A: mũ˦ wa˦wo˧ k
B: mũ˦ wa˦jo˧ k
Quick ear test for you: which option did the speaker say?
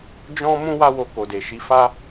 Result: A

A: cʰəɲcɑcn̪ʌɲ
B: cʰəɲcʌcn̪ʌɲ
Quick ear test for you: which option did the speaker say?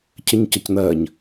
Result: B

